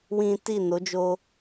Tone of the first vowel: high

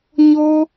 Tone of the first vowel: high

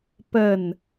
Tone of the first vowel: falling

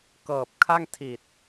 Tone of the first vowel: low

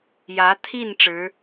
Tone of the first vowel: rising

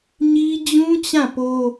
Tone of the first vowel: high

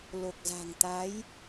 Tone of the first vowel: low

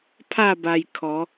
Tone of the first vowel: falling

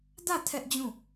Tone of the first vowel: falling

